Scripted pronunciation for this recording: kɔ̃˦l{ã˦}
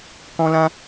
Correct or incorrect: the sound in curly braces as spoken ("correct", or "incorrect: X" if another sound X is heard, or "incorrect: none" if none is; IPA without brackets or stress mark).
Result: correct